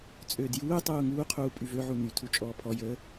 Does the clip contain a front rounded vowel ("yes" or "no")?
yes